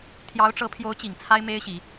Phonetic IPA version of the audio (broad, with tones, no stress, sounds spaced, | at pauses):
t̪ʰ j ɑ˧˥ ʊ̯ ʈ͡ʂ ɤ˧˥ pʰ j o˧˥ ʊ̯ t͡ɕ i˨˩ ŋ t͡sʰ a˥ ɪ̯ m e˥ ɪ̯ ɕ i˨˩˦